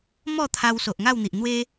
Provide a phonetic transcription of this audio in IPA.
m ɔ˥˧ t̪ʰ a˧ w s o˨ ʔ ŋ a˥˧ w n̪ i˨ ʔ n̪ w e˦

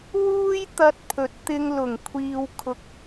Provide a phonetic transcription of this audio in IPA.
w uː˥ j t̪ ɐ˧ t̚ pʰ ɵ˨ t̚ t̪ ɪ˧ ŋ l ʊ˨˩ ŋ kʷʰ iː˧ w kʰ ʊ˧ k̚

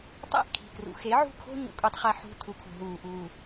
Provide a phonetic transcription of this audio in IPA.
tˤ æ̰˦ ʔ kʰ i̤˨ k r ṵ˨ x e˨˦ ʕ ṳ˦˨ kʰ o̤˦ ɲ ṵ˨ kʷʼ e˦ tˤ χ æ˦ ħ ṳ˦ tʰ u˨ kʰ ṳ˨ ɦ uː˨ ʔ uː˨

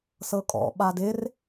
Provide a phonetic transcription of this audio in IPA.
s ɤ kʼ ɔ̰ ɓ a d ɪ r

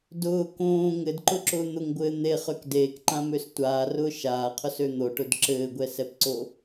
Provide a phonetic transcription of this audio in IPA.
d ʊː k õː ŋ ɘ d ǃ ʊ ǁ ʊː n̪ ʊ ŋ ɡʷ ɘː n̪ e χ ø k d eː k ǃ ã m ø s tʷ aː r ʊː ʃ aː qʰ ʊ s ø n̪ o ʈ ʊ d ǁ ɘː ɡʷ ɛ s ɛ p ǀ o

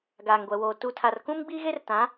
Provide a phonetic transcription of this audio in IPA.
ɡ aː˨ ŋ ɡʷ ɛ˨ w oː˨ t u˨ tʰ a˨ r k ũ˦ m ɡ͡b i˦ ɣ e˦ r t ã˨˦

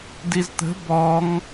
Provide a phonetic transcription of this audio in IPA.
d i z t̪ ə̤ b ɔ ŋ

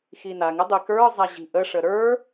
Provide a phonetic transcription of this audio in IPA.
x i n a ŋ ɪ dˤ i k ə˞ zˤ a ʑ i̤ ʔ ə ʂ ə ɾ ə˞

